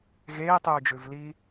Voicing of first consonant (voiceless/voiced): voiced